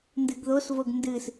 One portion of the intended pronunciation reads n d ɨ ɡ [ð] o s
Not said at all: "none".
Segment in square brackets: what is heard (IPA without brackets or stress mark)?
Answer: ð